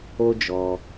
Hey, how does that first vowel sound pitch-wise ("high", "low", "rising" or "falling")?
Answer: high